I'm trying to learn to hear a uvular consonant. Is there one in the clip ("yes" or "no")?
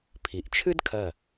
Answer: no